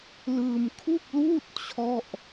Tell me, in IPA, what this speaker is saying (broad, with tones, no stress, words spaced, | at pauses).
lɯː˧mkʰu˥˩k̚luː˥˩t̚ t͡ɕʰɔ˥˩ʔ